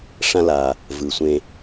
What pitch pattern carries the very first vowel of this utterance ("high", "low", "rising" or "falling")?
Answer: high